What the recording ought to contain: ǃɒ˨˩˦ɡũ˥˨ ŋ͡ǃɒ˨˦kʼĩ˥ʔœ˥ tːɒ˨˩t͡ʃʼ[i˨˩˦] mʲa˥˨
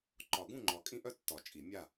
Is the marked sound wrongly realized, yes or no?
no